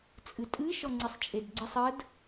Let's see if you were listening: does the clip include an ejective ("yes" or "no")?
yes